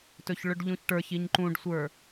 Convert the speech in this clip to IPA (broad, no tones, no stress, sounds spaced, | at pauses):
t ɵ ç ɭ ɵ ɖ ʎ ũ ç ʈ ə˞ ç i ɲ ǃ ũ ɖ sʷ ə˞